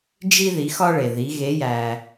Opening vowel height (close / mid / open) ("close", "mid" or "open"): close